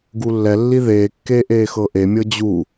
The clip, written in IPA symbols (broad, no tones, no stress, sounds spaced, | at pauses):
ɡ u lː ɛ lː i ð eː kː eː ʔ eː x ɤː ʔ e mʲ ɤ d͡ʑ u